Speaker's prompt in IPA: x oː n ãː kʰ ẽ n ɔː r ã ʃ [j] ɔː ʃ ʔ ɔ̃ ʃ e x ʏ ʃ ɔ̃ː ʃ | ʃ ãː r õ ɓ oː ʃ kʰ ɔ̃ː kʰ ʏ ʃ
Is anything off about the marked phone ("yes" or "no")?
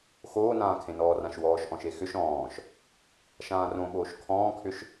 yes